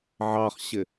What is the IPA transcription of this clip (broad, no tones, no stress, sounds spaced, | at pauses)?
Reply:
ʕ ɑ χ ɕ ɪ